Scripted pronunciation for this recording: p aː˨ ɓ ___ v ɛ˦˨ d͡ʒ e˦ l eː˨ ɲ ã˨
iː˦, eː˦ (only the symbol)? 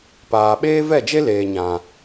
eː˦